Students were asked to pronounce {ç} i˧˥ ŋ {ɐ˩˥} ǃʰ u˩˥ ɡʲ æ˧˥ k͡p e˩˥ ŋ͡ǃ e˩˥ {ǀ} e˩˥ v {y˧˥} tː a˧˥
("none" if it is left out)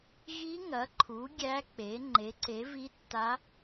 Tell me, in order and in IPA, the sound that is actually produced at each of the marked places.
ɣ, ɐ˩˥, ǀ, i˧˥

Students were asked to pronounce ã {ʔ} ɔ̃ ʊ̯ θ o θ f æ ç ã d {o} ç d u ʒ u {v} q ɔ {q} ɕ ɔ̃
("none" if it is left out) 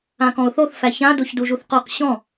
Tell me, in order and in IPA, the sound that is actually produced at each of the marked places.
k, o, θ, q

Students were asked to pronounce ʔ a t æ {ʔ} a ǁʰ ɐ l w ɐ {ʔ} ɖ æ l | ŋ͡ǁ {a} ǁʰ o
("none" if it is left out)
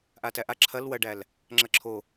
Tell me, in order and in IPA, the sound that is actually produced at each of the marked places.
ʔ, none, ɐ

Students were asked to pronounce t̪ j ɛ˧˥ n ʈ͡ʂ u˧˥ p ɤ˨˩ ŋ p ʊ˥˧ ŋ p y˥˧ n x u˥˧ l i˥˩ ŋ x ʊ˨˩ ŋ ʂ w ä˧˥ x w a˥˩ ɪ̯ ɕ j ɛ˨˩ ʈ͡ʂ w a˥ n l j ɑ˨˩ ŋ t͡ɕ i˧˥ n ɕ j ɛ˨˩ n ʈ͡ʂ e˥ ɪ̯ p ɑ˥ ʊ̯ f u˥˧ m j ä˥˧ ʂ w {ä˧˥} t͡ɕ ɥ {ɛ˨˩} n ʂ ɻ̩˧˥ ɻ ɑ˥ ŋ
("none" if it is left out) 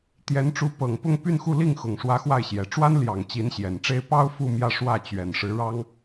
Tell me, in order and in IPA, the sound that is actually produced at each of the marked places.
ä˥˩, ɛ˨˩

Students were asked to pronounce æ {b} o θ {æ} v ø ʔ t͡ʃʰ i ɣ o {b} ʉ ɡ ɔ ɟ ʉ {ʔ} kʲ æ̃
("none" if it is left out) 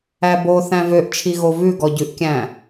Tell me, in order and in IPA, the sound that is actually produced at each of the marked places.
b, æ̃, v, ʔ

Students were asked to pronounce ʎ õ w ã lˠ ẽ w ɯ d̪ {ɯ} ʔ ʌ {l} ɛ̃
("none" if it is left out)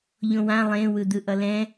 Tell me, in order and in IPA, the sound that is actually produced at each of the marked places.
ɯ, l

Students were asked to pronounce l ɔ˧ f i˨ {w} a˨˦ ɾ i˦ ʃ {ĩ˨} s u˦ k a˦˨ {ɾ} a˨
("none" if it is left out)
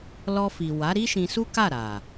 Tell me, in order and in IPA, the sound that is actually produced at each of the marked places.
w, ĩ˧, ɾ

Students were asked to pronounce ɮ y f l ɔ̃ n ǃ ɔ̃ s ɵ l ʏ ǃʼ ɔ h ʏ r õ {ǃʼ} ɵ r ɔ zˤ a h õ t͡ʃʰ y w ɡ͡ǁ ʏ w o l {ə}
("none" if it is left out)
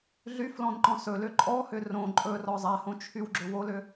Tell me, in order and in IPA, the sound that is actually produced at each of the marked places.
ǃʼ, ʏ

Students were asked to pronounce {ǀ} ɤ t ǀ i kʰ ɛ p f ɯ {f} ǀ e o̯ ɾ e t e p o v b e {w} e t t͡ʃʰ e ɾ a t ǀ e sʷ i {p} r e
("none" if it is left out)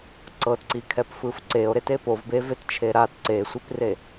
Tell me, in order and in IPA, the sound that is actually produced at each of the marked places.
ǀ, f, v, p

